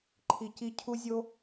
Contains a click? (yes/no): yes